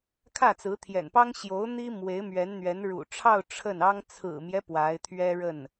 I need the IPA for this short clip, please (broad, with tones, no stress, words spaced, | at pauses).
kʰä˥˩t͡sɹ̩˧˥t̪ʰjɛ̰˨˩npɑ˥ŋ ɕjo˧˥ʊ̯ n̪i˥ mwe˧˥ɪ̯mɥɛ˧˥nn̪ɥɛ˧˥n ɻṵ˨˩ʈ͡ʂʰɑ˥˧ʊ̯ ʈ͡ʂʰə˥˩nɑ˥ŋ t͡sʰɹ̩˨˩mjɛ˦ pwa˧˥ɪ̯t̪ʰɥɛ˥ ɻə˥˩n